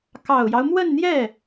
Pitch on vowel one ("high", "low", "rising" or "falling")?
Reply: low